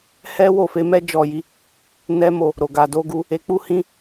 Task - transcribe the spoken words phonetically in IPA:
h ɛ˦ w o˦˨ f e˨˦ m ɛ˦ d͡ʒ ɔ˦˨ j i˨˦ | n ɛ˦ m o˦˨ | ɾ o˨ ɡ a˨ d o˧ ɡ u˧ | e˧ k͡p u˦ h ĩ˧

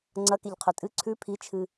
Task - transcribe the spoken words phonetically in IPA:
ŋ͡ǀ ɐ k e ʎ qʰ ɵ tʼ ɨ ǀʰ ʉ pʰ i t͡ʃʰ ɨ

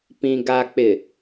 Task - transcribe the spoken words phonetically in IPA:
p ĩ˨ ɡ a˨ k͡p ɪ˨

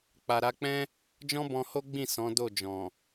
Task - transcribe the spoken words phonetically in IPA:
k͡p a˨ ɾ a˧ k͡p ɛ̃˦ | d͡ʒ ɔ̃˦ b ɔ̃˧ h o˦ ɡ͡b ĩ˦˨ s ɔ̃˨˦ d o˦˨ d͡ʒ ɔ̃˨

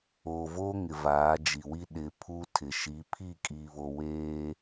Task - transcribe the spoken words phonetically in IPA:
oː˨ v o˦ ŋ ɪ˨ v aː˨˦ d͡ʒ i˨ w i˦ ɗ ɪ˨ pʰ u˦ tʰ ɪ˨ ʃ i˨˦ pʰ i˦˨ kʼ iː˨ β o˨ w eː˦

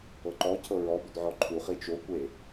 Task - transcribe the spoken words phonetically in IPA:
ɤ ǃ ɔ cʰ ɤ ɹ ɔ b ʏ d ʕ ɔ ǃʰ u χ i t͡ʃ o kʷ e

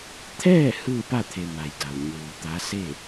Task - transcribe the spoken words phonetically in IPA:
t̪ʰ ɛː˥˨ h ɯː˥˨ p a˥˨ t̪ʰ e˩ m a˩ j d a˩ w ɲ uː˩ t̪ a˧˥ s e˥˨

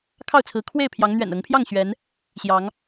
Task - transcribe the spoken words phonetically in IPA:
kʰ ɑ˥˨ ʊ̯ t͡sʰ ɹ̩˨˦ kʰ w e˥˨ ɪ̯ pʰ j ɑ˨˦ ŋ n̪ ɥ ɛ̰˨˩ n ɤ˨˦ ŋ pʰ j ɑ˥˨ ŋ ɕ ɥ ɛ˨˦ n | ɕ j ɑ˨˦ ŋ

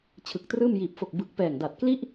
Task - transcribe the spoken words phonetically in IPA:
t͡ɕʰ ɯ˨˩ k̚ t r ɯː˥˩ m j iː˨˩ p̚ f o˨˩ k̚ b ɯ˨˩ k̚ p ɛː˨˩ ŋ d a˨˩ t̚ k l i˥˩ ʔ

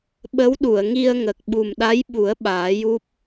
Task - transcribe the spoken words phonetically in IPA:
ɓ ə˧˥ w ɗ u˨˩˨ ə̯ ŋ i˧ ə̯ ŋ ə˨˩ k̚ ɓ u˨˩ m ɗ a˧˥ j ɓ u˨˩˦ ə̯ ɓ aː˨˩˦ j u˦˥ p̚

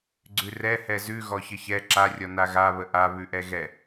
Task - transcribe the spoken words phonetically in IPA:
ɡ͡ǀ ʉ r ɛ h ɛ z ʉ ɣ ɔ ç ə ç ɛ ǁ a rʲ ɔ n a ɣ a β ə ʔ a β ʉ ʔ ɛ ɣ ɛ

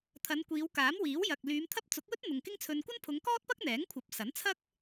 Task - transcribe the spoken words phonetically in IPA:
t̪ʰ ɐ˨˧ n kʷ iː˨˧ w k aː˨˥ m w iː˨˥ w j ɐ˨ k̚ l yː˨˧ m t̪ʰ ɐ˥ p̚ t͡s ʊ˨˥ k̚ w ɵ˥ t̚ n̪ ʊ˨ ŋ k ɪ˥ ŋ t͡sʰ ɵ˧ n kʷ ɐ˥ n pʰ ʊ˨˧ ŋ k ɔː˥ t̚ p ɐ˥ k̚ n̪ ɛː˨˥ ŋ kʷʰ ɐ˨˥ p̚ s ɐ˨˥ n t͡sʰ ɐ˥ k̚

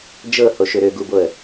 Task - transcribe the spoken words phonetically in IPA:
d͡ʒ ɤ h o ʃ ø ɾ ø ɡ u b o ə̯

